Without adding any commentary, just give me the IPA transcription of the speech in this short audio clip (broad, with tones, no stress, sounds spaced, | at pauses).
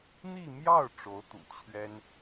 n̪ i˥˧ m j ɑ˥˩ ʊ̯ ʈ͡ʂ o˧˥ ʊ̯ t̪ ṵ˨˩ t͡ɕʰ ɥ ɛ˥ n